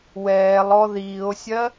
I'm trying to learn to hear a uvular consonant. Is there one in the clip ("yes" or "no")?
no